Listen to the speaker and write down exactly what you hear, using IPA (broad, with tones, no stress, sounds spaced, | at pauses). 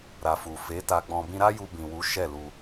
ɾ a˨ f u˨ f e˨˦ t a˧ ɡ͡b ɔ̃˧ b ĩ˦ ɾ a˦ j u˧ b ĩ˨ w u˨˦ ʃ ɛ˦˨ l u˧